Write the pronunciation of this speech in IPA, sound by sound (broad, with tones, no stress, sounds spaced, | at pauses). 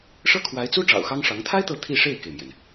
ʂ ɤ˥ kʰ w a˧˥ ɪ̯ t͡s u˥ ʈ͡ʂ ɑ̰˨˩ ʊ̯ x ɑ˥ ŋ ʂ ɑ˧˥ ŋ t̪ʰ a˥ ɪ̯ t̪ ɤ˥˧ t̪ʰ i˥˧ ʂ e˥˩ ɪ̯ k e˩ ɪ̯ m j ɛ˩ n